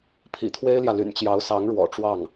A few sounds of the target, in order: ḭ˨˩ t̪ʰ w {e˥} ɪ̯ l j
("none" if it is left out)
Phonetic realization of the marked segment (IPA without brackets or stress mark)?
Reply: e˥